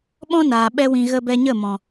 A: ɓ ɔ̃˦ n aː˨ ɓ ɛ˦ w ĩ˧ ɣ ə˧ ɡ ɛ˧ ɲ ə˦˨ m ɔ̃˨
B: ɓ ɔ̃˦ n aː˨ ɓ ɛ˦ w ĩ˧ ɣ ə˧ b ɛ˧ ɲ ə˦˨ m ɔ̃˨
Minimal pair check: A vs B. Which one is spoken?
B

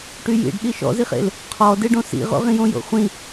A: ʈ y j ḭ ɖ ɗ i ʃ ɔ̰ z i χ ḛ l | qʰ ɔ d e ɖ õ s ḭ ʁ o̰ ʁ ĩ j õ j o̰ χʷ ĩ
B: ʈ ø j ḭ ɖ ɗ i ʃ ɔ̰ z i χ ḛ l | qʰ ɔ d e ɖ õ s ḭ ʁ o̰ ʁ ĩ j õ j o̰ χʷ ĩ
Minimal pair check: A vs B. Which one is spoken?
A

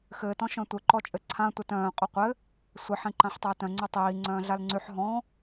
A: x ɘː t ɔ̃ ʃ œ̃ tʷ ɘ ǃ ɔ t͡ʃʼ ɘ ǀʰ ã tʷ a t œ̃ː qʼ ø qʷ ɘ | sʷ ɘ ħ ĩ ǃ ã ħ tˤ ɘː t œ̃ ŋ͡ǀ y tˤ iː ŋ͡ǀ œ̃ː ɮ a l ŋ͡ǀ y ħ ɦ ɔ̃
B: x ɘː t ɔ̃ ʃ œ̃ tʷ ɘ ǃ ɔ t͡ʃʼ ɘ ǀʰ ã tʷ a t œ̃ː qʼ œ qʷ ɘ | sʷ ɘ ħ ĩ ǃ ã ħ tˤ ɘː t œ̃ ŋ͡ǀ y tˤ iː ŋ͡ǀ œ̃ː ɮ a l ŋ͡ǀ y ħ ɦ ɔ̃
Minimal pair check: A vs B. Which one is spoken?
B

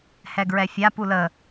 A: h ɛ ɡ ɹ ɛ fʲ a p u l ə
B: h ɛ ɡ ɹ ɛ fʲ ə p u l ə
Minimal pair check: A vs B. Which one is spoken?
A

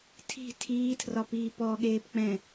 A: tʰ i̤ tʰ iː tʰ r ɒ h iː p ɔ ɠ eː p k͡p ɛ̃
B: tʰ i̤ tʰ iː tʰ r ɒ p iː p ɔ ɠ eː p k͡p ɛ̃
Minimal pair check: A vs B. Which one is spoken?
B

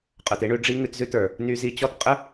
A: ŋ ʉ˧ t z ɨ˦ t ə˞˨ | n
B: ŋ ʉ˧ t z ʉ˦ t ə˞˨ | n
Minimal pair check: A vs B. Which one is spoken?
B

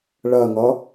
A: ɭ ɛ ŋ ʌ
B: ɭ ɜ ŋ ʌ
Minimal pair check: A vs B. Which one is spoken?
B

